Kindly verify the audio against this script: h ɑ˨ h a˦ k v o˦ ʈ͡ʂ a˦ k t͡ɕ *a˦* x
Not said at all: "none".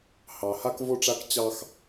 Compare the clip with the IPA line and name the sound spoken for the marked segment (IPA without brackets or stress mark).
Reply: ɑ˦